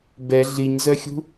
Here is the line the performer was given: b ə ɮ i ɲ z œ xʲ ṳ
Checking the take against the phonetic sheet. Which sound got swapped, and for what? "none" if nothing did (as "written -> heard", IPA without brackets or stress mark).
ə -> ɛ